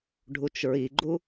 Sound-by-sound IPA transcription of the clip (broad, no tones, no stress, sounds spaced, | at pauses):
ɖʱ u t͡ʃ ɹ i ɡ͡ǃ u